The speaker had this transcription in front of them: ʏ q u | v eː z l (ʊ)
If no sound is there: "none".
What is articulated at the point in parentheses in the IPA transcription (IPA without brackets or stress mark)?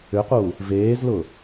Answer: ʊ